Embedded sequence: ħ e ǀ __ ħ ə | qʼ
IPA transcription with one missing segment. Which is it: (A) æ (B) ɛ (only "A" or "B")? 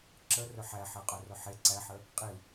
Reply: A